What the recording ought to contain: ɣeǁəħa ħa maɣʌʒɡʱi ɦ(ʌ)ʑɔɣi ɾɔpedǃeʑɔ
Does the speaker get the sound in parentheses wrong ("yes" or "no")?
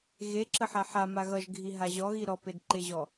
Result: yes